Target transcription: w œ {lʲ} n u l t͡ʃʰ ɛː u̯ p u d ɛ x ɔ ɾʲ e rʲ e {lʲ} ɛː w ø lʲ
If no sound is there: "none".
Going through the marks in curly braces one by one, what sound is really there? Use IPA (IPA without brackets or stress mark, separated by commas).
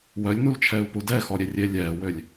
lʲ, lʲ